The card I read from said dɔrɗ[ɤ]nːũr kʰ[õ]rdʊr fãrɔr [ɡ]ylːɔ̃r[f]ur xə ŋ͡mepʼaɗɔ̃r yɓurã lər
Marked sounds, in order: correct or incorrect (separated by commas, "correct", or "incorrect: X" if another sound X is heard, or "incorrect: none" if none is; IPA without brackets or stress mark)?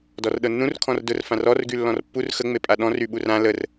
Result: correct, incorrect: ɔ̃, correct, incorrect: pː